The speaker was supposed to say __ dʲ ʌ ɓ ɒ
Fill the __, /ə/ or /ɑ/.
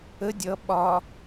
ə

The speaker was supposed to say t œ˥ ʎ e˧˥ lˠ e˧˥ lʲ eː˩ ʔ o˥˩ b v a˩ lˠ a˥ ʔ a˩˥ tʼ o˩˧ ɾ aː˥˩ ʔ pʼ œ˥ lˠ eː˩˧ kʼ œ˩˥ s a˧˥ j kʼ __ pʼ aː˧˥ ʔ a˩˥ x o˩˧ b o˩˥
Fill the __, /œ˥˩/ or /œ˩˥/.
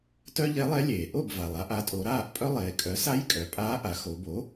œ˩˥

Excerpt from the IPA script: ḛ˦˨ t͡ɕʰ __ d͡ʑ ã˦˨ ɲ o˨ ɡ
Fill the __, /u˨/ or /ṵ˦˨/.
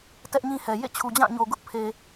u˨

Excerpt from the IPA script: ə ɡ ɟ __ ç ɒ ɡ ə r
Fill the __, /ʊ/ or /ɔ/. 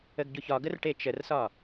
ʊ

